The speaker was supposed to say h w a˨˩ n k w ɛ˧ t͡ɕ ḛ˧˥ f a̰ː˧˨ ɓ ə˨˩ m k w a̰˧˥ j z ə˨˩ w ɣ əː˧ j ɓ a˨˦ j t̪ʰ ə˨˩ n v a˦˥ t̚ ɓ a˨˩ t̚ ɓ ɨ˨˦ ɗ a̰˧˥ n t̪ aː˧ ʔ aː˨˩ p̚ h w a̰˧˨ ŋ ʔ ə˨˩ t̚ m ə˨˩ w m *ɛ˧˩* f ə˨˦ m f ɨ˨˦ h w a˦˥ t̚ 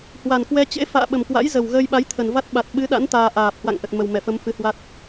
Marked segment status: correct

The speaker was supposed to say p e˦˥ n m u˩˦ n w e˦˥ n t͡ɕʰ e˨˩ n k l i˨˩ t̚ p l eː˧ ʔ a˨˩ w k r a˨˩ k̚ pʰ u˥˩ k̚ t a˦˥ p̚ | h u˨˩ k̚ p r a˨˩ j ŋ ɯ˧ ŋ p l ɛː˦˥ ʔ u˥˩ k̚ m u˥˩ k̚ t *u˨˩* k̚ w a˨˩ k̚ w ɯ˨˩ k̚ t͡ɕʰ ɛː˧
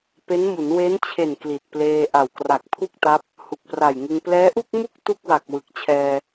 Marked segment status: incorrect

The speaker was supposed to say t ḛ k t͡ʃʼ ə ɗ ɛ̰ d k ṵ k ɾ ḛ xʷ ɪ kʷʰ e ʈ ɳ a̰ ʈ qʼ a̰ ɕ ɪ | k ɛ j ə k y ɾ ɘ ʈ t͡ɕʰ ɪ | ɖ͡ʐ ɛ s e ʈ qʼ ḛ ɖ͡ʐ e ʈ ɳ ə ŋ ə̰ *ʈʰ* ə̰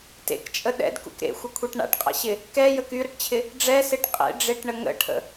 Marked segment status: correct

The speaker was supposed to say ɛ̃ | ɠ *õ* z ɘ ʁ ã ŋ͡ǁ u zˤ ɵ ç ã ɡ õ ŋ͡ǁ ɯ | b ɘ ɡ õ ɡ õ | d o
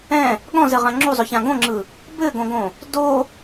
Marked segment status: incorrect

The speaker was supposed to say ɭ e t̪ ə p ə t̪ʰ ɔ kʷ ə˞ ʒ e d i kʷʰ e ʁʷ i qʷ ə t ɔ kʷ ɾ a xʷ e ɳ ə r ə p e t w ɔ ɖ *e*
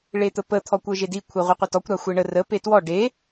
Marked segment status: correct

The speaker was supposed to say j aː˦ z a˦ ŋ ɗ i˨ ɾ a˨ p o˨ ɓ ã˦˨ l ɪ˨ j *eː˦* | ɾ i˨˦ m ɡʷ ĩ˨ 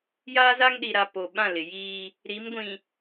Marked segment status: incorrect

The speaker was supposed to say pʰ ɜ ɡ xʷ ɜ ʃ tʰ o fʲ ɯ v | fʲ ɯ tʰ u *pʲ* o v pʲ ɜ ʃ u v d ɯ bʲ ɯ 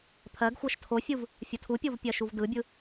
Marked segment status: correct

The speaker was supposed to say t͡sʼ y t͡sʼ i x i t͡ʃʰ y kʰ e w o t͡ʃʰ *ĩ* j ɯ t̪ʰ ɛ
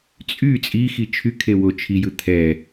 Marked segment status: incorrect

